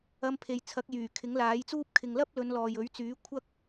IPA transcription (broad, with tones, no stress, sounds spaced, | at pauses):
ɐ˧ m pʰ e˨ j t͡sʰ ɐ˨˥ k̚ j yː˨˩ kʰ ɪ˨˥ ŋ l aː˨˥ j t͡s uː˥ p̚ kʰ ɪ˨ ŋ l ɐ˥ p̚ l ɵ˨˧ n l ɔː˨ j ɵ˨˥ ɥ t͡s yː˨˥ kʷʰ ɐ˥ k̚